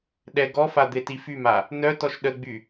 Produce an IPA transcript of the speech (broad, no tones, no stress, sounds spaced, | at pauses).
ɗ ɛ ɡ ɔ f a d̪ e t i f y m a | n œ t ɔ ʃ ɗ ə ɡ͡b y